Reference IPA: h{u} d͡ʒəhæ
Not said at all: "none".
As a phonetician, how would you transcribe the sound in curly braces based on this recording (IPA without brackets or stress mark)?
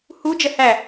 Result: u